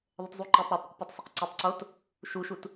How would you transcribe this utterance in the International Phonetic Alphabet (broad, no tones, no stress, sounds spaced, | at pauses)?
ðˤ ə t zˤ u ǃ e tˤ ɾ a tˤ ɾ ə q p ɛ tˤ sˤ ə q ǀ o tˤ ǀ o t | ʃ u ʃ u t